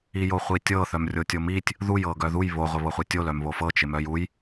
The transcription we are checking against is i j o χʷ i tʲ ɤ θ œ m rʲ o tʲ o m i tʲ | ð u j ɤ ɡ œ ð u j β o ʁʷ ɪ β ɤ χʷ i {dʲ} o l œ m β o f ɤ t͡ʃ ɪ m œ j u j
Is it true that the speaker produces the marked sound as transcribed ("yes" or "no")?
no